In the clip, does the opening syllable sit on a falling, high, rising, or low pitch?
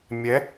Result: rising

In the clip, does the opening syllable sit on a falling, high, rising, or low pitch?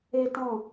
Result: high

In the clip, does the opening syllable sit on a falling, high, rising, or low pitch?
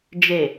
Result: low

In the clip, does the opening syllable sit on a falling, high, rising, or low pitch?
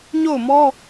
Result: falling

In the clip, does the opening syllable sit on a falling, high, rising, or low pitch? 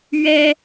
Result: high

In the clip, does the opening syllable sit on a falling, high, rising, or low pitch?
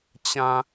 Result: high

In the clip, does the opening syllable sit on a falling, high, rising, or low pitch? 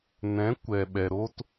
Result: rising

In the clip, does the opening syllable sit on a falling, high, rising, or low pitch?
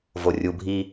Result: low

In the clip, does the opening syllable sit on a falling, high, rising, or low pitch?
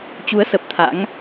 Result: rising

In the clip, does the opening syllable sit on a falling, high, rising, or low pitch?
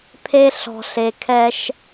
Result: high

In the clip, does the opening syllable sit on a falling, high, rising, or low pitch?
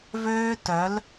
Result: high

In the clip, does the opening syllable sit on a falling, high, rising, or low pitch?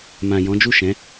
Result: low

